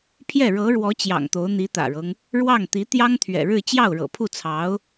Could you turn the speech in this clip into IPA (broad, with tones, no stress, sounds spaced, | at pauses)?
pʰ j ɛ˥˩ ɻ ɤ˧˥ ɻ w ɔ˧˥ t͡ɕ j ɑ̰˨˩ ŋ t̪ o˧˥ ʊ̯ n̪ i˧˥ t̪ ä̰˨˩ ɻ ɤ˦ ŋ | ɻ w ɑ˥˩ ŋ t̪ i˧˥ t̪ j ɑ˥ ŋ t̪ʰ ɥ ɛ̰˨˩ ɻ ɻ̩˥˧ t͡ɕ j ɑ˥˩ ʊ̯ ɻ ɤ̰˨˩ pʰ u˥˩ t͡sʰ ɑ˧˥ ʊ̯